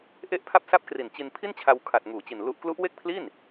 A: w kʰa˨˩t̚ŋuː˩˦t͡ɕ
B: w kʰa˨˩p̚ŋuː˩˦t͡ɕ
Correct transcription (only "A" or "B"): A